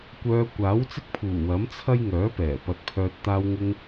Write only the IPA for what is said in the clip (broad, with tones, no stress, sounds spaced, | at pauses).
kʷ œː˧ kʷ aː˨˥ w t͡s ɪ˥ k̚ pʰ uː˨˩ w ɐ˨˥ m t͡sʰ ɐ˥ j ŋ œː˨˥ p ɛː˨˩ p ɐ˨˥ t̚ pʰ œː˧ t̚ t̪ aː˧ w ŋ ɪ˧ ŋ